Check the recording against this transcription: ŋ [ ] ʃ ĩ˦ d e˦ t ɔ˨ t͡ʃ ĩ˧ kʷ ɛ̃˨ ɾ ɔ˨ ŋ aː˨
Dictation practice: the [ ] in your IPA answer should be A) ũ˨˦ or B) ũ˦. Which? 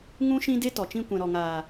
B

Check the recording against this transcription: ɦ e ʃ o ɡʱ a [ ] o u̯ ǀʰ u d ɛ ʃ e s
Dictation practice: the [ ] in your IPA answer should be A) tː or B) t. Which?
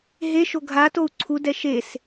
B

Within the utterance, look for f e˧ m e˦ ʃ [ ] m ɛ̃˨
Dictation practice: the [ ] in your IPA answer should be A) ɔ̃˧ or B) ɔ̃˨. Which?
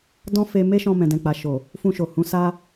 A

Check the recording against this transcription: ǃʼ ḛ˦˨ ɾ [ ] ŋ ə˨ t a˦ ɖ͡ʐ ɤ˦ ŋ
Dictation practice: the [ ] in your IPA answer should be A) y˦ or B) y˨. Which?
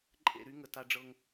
A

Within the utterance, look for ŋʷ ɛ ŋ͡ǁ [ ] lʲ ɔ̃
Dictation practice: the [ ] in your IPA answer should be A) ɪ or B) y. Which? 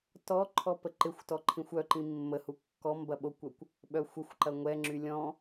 B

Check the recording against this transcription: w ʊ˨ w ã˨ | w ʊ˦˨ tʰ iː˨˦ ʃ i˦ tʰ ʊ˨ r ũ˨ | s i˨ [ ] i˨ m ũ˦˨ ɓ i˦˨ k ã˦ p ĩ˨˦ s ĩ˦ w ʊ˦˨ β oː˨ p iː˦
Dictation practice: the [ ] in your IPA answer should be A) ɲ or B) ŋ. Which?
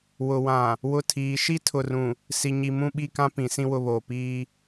A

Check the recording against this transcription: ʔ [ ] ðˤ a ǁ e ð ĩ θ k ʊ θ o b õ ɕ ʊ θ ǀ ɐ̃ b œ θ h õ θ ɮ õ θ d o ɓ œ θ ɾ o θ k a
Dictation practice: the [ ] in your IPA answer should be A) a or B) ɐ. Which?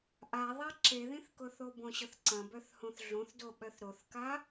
A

